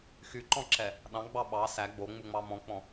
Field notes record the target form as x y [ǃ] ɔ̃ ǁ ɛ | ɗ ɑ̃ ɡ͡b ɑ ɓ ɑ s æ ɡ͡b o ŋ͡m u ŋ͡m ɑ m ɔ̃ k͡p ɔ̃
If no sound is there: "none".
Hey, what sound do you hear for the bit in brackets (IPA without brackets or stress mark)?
ǃ